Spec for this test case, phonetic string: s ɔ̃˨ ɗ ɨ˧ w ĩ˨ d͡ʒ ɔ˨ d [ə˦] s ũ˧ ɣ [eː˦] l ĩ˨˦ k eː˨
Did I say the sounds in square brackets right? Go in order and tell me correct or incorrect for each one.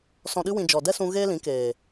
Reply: incorrect, correct

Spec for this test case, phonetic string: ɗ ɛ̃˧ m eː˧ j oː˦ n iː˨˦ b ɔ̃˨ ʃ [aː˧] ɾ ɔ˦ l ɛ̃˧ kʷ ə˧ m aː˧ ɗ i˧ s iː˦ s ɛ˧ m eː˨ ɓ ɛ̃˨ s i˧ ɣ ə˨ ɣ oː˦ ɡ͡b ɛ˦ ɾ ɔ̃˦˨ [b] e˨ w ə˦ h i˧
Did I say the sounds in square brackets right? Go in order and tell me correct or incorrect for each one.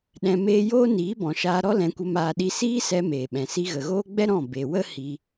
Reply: correct, correct

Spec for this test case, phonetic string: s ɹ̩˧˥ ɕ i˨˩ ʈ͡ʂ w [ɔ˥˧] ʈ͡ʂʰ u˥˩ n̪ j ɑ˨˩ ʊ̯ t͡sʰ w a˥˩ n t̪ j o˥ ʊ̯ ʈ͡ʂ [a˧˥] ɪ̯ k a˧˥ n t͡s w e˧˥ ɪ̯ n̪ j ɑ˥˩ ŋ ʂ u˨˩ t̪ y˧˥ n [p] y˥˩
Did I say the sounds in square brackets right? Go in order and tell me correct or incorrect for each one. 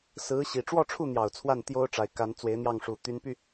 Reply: correct, incorrect, correct

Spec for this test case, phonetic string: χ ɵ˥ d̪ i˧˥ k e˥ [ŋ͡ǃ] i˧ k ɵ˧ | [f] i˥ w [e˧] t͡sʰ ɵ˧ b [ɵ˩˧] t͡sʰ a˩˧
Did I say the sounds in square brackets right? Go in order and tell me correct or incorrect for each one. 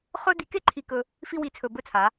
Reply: incorrect, correct, incorrect, incorrect

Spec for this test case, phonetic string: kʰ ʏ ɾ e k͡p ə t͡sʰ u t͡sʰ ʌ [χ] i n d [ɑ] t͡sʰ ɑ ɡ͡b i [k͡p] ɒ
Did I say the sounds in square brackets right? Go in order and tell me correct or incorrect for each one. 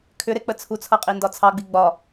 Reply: incorrect, incorrect, incorrect

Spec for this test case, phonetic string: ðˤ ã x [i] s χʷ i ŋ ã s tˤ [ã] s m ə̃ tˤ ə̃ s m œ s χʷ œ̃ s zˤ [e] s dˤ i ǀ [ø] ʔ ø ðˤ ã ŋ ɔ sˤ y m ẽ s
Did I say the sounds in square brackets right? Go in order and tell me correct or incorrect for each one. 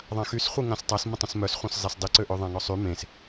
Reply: incorrect, incorrect, correct, correct

